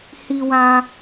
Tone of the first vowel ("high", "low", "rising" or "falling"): low